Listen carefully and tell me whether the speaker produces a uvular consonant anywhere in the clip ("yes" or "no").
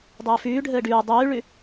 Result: no